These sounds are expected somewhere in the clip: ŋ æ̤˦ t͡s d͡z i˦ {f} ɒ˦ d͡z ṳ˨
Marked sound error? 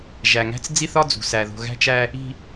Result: yes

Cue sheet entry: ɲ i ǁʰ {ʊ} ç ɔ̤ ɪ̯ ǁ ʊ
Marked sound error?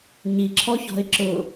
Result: yes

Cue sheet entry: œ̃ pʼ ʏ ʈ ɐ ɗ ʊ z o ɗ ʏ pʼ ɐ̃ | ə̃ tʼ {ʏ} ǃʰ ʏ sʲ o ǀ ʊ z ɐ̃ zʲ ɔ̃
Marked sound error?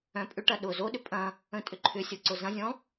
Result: no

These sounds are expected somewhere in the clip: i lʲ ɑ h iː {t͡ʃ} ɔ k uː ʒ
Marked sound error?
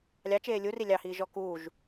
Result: yes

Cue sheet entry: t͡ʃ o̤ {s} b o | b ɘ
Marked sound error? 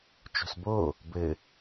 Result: no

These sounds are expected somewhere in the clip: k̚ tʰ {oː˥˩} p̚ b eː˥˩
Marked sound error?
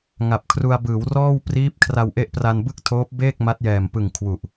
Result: yes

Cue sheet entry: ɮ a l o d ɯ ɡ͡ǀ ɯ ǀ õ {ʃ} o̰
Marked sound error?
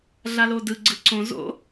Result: yes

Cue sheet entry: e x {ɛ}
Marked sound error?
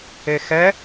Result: no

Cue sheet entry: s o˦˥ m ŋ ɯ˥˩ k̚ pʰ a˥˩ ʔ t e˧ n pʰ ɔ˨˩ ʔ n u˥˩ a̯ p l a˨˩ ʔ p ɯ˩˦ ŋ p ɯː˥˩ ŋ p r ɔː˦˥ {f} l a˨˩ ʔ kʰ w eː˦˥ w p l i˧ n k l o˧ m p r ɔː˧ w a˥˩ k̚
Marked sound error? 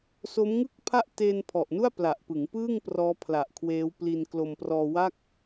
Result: yes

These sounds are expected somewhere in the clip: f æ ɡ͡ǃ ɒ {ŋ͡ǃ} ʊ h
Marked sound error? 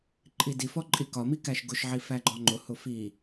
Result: no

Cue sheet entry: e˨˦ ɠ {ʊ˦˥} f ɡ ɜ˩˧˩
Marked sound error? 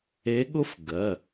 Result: no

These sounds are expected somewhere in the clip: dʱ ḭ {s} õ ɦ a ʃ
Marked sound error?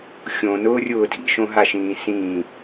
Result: yes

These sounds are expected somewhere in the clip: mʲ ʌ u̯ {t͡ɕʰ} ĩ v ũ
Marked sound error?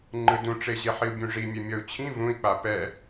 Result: no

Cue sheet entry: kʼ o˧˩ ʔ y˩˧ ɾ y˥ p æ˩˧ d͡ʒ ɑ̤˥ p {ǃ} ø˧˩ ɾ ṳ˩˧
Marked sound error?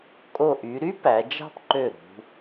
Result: no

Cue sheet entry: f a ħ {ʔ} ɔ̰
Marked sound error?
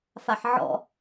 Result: yes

